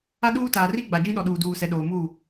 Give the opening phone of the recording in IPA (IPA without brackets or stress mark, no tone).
a